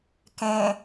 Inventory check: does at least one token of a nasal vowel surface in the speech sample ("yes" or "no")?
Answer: yes